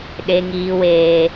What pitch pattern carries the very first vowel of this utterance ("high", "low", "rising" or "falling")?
high